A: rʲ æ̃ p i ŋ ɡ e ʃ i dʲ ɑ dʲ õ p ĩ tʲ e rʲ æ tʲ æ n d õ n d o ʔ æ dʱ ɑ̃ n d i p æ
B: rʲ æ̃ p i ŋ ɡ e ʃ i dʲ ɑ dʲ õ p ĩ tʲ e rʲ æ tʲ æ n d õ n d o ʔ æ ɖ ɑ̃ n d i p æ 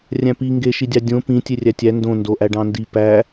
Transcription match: B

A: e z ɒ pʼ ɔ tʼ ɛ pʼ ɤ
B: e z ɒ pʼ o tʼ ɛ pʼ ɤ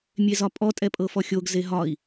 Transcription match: A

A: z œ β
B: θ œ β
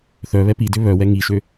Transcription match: B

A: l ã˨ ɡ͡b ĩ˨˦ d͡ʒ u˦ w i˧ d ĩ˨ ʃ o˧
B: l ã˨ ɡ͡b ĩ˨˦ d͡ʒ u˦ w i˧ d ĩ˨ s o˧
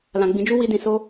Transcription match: B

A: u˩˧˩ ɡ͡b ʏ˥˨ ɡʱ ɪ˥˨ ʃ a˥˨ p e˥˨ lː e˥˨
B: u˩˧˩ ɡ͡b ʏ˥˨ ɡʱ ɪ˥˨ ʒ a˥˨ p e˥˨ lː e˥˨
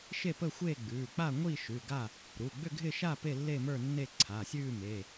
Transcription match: A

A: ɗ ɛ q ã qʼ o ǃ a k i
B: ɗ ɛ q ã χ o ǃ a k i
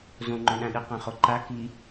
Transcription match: B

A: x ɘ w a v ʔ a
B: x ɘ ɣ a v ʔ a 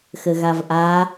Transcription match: B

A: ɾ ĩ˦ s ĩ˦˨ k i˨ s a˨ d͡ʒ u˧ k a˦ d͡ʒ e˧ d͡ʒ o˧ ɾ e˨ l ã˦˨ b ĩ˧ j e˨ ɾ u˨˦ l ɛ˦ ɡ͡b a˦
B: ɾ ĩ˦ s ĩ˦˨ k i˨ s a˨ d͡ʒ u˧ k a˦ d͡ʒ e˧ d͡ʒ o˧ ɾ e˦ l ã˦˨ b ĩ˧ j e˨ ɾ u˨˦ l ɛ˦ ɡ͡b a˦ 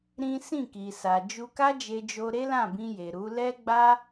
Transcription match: B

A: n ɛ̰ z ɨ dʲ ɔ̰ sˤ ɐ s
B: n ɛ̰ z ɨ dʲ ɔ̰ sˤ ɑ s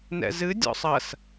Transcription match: A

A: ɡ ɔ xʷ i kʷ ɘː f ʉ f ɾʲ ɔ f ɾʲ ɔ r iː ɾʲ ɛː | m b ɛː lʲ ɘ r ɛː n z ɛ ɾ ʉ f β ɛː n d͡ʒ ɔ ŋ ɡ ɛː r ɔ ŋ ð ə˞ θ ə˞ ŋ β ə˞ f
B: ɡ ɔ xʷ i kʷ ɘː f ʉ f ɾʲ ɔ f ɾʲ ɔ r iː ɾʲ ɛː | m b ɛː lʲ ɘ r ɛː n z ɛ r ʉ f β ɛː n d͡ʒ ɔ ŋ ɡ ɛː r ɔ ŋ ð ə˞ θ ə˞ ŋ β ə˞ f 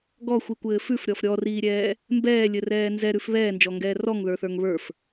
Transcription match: A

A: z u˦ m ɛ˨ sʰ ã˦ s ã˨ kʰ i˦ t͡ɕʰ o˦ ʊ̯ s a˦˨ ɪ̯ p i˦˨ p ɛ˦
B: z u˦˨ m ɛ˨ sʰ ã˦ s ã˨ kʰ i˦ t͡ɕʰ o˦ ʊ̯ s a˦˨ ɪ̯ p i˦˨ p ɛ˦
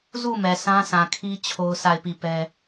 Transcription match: B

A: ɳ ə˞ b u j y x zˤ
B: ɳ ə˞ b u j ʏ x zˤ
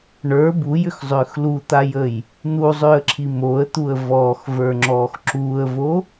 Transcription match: B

